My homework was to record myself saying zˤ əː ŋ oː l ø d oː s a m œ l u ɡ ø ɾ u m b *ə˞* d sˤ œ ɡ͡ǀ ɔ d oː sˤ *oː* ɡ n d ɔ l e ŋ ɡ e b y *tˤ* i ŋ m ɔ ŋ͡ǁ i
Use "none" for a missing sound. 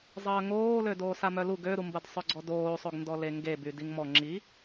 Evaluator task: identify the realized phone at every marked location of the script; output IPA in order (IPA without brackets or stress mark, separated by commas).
ə, o, d